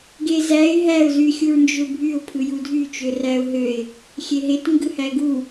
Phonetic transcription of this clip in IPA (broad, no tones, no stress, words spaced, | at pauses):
ɡezæɪ̯ ɦæʊ̯ zyxʲuɹnd͡ʒøbʱyʊ̯ pʰɯjudʱy t͡ʃøræʊ̯ɦøɪ̯ | xʲeɦet ŋɡɯhæɡu